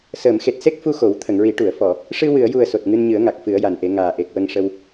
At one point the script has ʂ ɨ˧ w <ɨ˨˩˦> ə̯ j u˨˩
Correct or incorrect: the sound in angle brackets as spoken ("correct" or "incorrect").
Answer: incorrect